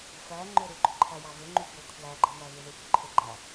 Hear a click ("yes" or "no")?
yes